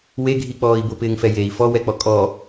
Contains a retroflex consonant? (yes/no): no